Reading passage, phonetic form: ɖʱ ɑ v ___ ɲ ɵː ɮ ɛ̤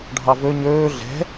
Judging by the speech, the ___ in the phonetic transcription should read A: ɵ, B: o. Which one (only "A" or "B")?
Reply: A